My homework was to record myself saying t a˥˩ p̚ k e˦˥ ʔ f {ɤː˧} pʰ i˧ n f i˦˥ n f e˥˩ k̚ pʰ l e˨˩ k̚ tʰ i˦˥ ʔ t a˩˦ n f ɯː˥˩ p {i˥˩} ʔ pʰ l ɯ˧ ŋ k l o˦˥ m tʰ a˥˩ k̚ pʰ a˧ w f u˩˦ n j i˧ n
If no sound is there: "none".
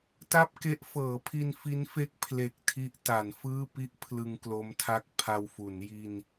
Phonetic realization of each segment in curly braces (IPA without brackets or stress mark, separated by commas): ɤː˩˦, i˦˥